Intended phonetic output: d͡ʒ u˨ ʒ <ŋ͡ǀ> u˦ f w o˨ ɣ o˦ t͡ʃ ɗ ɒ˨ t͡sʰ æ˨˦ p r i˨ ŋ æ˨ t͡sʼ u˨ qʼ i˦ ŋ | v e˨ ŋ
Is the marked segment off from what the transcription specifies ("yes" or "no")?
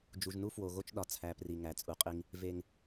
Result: yes